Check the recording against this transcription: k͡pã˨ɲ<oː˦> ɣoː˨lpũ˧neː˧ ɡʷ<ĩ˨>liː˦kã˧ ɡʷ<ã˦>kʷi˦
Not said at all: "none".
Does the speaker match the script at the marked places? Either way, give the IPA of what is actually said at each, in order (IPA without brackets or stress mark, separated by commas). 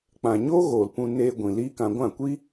oː˦, ĩ˨, ã˦˨